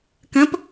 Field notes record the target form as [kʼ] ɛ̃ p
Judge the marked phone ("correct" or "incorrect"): incorrect